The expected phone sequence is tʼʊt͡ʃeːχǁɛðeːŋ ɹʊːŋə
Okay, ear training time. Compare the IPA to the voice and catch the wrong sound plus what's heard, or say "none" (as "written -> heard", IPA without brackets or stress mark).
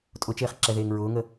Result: none